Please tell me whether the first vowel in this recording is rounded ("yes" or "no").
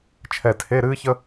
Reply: no